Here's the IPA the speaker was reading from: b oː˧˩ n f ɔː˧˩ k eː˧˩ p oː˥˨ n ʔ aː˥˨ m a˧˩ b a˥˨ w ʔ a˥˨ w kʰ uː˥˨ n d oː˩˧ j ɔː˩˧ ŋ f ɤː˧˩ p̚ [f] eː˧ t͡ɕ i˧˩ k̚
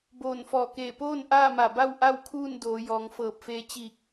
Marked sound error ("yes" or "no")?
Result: no